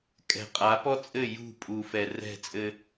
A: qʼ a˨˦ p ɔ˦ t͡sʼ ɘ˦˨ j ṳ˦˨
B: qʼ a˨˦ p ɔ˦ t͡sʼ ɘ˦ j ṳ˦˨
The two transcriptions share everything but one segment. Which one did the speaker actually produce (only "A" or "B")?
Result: A